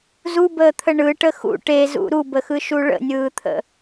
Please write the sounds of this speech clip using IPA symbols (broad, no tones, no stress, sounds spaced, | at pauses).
z u b əː t̪ʰ ə ɳ ɯ ʈ ə x ṵ ʈ e z ṵ ɾ u b ə x ɯ ʃ u ɭ ə̰ nʲ ɯː t̪ʰ ə̰